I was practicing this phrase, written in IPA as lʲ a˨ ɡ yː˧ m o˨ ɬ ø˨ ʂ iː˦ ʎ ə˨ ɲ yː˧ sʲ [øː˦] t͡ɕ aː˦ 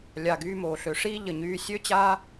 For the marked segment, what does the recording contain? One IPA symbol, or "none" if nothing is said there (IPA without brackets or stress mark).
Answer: ø˦